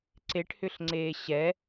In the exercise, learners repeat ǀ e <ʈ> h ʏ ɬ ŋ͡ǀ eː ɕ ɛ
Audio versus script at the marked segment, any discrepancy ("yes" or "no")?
no